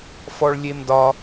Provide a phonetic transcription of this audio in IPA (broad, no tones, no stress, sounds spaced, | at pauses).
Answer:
f ɔ ɭ lʲ e m d ɒ